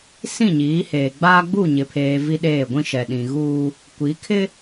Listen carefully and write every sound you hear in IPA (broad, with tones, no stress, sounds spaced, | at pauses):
s ĩ˦˨ ɲ iː˨˦ h eː˨ ɡ͡b aː˦ ɡ͡b u˦˨ ɲ ɪ˨ pʰ eː˨ v i˦ ɗ eː˦˨ ɡʷ ĩ˦ ʃ ɛ˨ ɗ ĩ˨ ɣ uː˦ | kʷ i˨˦ kʰ ɪ˦